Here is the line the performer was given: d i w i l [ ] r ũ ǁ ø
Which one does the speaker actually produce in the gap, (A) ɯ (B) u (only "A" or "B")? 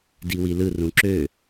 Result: A